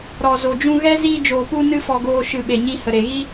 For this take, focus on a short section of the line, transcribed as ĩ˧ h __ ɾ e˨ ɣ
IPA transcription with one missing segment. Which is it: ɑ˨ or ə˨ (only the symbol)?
ə˨